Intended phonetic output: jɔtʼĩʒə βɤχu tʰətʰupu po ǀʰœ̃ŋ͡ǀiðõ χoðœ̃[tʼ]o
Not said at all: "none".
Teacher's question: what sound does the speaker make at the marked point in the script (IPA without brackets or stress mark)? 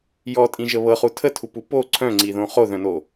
n